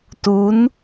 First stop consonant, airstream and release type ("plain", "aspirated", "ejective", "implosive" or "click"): plain